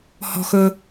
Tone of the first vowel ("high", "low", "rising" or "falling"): low